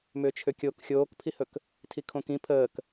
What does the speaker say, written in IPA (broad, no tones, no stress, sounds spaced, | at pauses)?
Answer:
m ʏː t͡ʃʰ ʏ kʲ o k xʲ oː k pʰ i h ɵ k | tʰ i kʰ õ k ĩ pʰ əː k